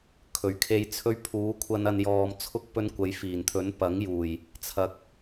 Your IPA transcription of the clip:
kʰ ɵ˨˩ ɥ kʰ e˧ j t͡sʰ ɵ˥ ɥ pʰ uː˨˥ kʷʰ ɐ˧ n ɐ˧ n j ɔː˨ m t͡sʰ ʊ˥ k̚ p ɵ˧ n kʷ ɐ˨˧ j f iː˨˩ n t̪ʰ ɵ˨˥ n p ɐ˨˥ ŋ j uː˨˩ j | t͡sʰ ɐ˨ k̚

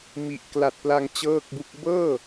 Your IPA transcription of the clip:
m i˨˩ ʔ k l a˨˩ t̚ p l a˧ ŋ t͡ɕ ɤː˥˩ k̚ b u˥˩ k̚ b ɤː˥˩

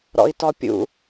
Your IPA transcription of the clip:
ɾ ɔ̰ i̯ t ɔ pʲ ṵ

